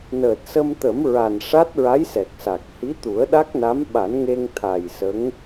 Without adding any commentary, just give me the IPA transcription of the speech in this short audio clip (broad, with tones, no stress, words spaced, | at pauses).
nəː˨˩t̚sə˧mt̪ə˨˩˦mɹa˨˩n ʂa˦˥t̚ɹa˧˥jsɛ˨˩k̚sa˨˩k̚ hi˧˥t̪u˨˩˦ə̯ɗa˦˥k̚na˧˥m ɓa˨˩˦nŋe˧ŋt̪ʰa˨˩j sə˧˥ŋ